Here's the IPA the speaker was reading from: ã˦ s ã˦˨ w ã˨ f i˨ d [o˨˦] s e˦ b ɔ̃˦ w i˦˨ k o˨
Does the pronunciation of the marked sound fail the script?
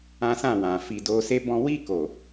yes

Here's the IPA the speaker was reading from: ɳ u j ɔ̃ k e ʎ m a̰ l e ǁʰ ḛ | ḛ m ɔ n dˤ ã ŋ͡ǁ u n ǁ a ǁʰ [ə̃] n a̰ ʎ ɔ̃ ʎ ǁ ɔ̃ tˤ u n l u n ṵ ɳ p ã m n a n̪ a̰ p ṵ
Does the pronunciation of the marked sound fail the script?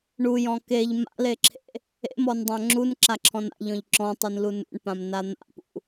yes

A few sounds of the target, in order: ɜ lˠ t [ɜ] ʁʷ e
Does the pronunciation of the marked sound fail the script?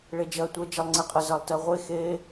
no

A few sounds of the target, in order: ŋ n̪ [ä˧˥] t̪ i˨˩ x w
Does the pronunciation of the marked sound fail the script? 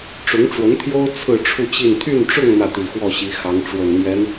yes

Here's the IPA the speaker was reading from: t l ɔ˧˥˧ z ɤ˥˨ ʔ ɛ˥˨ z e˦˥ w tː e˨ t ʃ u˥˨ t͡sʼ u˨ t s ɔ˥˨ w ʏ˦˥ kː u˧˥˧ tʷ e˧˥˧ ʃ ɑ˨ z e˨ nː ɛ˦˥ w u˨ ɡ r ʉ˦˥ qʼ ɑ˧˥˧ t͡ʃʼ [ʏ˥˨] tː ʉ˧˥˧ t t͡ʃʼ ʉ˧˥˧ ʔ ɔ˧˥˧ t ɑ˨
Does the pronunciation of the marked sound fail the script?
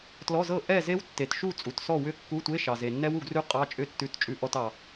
no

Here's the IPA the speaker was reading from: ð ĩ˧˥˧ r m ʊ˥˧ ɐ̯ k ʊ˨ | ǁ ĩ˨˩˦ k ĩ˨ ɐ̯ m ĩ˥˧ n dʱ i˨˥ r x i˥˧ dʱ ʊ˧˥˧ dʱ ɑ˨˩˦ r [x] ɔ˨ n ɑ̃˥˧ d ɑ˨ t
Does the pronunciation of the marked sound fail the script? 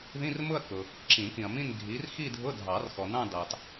no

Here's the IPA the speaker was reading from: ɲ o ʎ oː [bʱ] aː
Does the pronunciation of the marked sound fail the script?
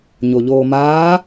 yes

